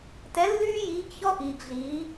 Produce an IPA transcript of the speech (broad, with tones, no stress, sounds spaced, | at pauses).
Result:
t ɛ˧˥ lː yː˥ j iː˧˥ ɡ ç ɔ˥ ʔ iː˧ ɡ ɮ iː˧˥